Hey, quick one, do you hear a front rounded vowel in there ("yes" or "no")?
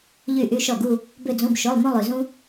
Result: yes